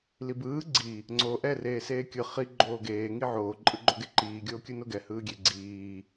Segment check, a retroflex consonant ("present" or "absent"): absent